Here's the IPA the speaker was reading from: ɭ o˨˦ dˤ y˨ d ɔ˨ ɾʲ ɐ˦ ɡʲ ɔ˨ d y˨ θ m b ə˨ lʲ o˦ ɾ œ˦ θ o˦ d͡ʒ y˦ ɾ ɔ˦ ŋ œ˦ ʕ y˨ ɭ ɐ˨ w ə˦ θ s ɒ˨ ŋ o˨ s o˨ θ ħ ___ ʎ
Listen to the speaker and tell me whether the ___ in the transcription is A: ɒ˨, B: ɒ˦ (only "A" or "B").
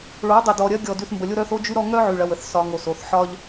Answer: B